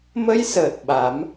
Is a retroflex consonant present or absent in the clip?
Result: absent